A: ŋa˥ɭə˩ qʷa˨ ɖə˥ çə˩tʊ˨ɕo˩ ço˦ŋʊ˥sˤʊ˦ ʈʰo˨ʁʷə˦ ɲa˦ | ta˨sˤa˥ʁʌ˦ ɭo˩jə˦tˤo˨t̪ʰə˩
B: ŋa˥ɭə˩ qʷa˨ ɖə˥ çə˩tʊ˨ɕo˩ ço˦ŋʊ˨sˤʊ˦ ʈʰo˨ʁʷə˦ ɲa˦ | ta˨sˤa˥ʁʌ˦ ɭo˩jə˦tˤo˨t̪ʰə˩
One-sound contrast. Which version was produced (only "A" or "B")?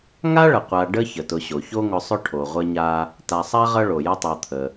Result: B